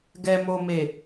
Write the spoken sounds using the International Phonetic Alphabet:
ɡ ɛ˨ m o˨ m e˨

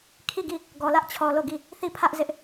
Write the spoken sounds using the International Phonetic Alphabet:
kʰ i˦˨ ɡ i˦˨ | ɡ ɔ˨ l ä˦ ʔ t͡ɕʰ ɔ˨ l o˦˨ ɡ i˦˨ | θ i˦˨ pʰ ä˦ ʔ z ɪ˦ ʔ

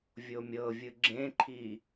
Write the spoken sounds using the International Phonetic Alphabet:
vʲ o mʲ ɤ vʲ ɯ ɡ͡ǁ ẽ ǃʰ i

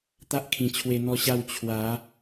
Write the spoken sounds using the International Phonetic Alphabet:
t̪ a˦ ʔ kʰ ĩ˨˩ t͡ɕʰ w e˧ n̪ ɔ˥˧ ɕ a˥˧ w t͡ɕʰ w a˨˦

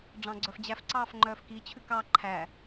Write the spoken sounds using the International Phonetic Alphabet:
ɖ͡ʐ ɑ̃ ɡ͡ǀ œ f d͡ʑ æ f ǀ ɑː f ŋ͡ǃ œː f k i t͡ɕʰ ʉ k ɑ ǃʰ æ

